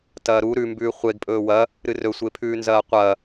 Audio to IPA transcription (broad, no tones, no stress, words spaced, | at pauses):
tɐːɾu ɾʉmbʉː χʷeɡpʼɵː wɐ | ɾɨrɵsʷepʰʉː nzɐːqʷɐː